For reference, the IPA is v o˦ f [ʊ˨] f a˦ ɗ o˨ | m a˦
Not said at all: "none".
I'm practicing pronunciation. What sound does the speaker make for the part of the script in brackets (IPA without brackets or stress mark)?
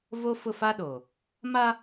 ʊ˦˨